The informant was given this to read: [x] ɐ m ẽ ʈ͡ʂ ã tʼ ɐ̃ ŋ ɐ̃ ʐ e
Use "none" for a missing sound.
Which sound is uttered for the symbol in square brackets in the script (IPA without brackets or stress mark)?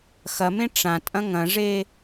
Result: x